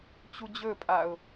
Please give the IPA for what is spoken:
t͡ɕ u d͡ʑ ɵ pʼ a ʊ̯

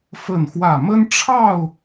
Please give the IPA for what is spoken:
f ə˥˨ n x w ä˥˨ m ə˦ n ʈ͡ʂʰ ɑ˥˨ ʊ̯

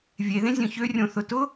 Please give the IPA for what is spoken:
vʲ e ð ẽ zʲ œ̃ ç ø rʲ õ θ ʊ t ʊ

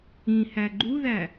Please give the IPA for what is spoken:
ĩ h æ ɡ͡ǃ u ð æ

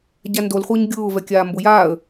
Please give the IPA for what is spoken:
ɟ a n d o l χʷ ɪː ɲ ɡʲ ʊː v ɛ kʲ aː m b ʊ j aː ə̯

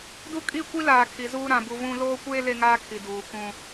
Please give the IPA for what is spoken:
d u˦ kʼ i˦˨ kʷ i˦ l aː˨ kʰ i˨ z uː˦ ɾ ã˨ b u˦ v ũ˦ l oː˦ kʷ eː˦ l e˦ ŋ aː˦ kʰ i˨ d uː˨ k ũ˦

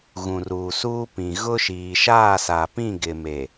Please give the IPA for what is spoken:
ɣ ũ˨ r uː˨ s uː˦ p ĩ˨ ɣ ʊ˦ ʃ iː˨ ʃ aː˦˨ s a˨ p ĩ˦˨ ɡ ɪ˨ m e˨

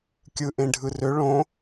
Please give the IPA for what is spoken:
kʲ ɯ ʔ ẽ ɖʱ ɯ r ø ɭ õ

